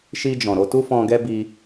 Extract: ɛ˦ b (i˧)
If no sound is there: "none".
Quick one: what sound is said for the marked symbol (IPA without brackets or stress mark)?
i˧